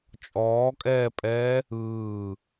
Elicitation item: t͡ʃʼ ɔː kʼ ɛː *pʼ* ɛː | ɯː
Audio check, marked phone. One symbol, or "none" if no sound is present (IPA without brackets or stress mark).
pʼ